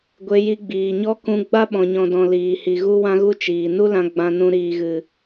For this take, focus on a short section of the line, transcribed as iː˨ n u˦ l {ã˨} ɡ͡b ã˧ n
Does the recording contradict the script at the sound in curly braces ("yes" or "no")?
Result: yes